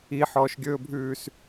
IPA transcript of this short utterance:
i ħ ɔː ʃ ɡʲ ɵː bʱ ʉː s

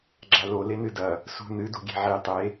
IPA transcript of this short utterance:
ɡ͡ǁ a l o l e n ɨ d ɐ | s ṳ n ɨ d ṳ ɡʲ e̤ ʕ i tˤ e

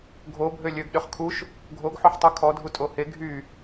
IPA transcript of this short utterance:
ɡʱ o bʱ ø lʲ ø ɡ ɗ ø χ kʰ u ʃ | ɡʱ o ɡ ħ o ħ tˤ o kʰ ɔ dʱ u tʼ o h e ɡʱ y

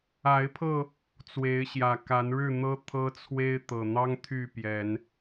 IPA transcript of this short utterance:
a˨˦ ɪ̯ pʰ ɤ˧ | t͡s w e˨˦ ɪ̯ ɕ j ä˨˩ k a˨˦ n ɻ ɻ̩˥˨ n̪ ɤ˦ t̪ʰ ɤ˦ t͡sʰ w e˦ ɪ̯ t̪ ɤ˨˩ n̪ ɑ˦ ŋ t̪ʰ y˥˨ p j ɛ˨˦ n

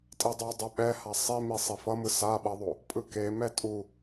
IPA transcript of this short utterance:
tʼ i dˤ o dˤ ɛ ɓ ɛ h a sˤ i m i sˤ i f ʌ m ɯ s a ɓ ʌ ðˤ o | pʼ ɯ k e m ɛ tʼ u

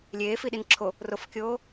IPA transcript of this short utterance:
lʲ eː f i ɗ i n ǁʰ o | r o f kʲ oː

